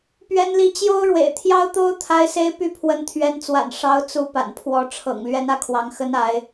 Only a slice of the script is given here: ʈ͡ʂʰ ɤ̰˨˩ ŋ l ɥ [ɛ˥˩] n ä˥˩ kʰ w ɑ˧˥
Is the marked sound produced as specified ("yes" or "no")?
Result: no